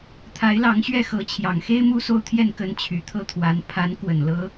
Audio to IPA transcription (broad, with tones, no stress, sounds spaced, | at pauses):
t̪ʰ a˧˥ ɪ̯ l ɑ˧˥ ŋ ɕ ɥ ɛ˥˩ x ɤ˧˥ t͡ɕʰ j ɑ˨˩ ŋ x e˥ ɪ̯ m u˥ s o˥˧ ʊ̯ t̪ʰ j ɛ˥˩ n k ə˥ n t͡ɕʰ y˨˩ t̪ʰ ɤ˥ t̪ʰ w a˧˥ n pʰ a˧˥ n k w ə˨˩ n l ɤ˥